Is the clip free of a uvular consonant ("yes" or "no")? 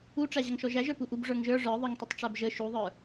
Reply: yes